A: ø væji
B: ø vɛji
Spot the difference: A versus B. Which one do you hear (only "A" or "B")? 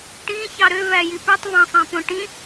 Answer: A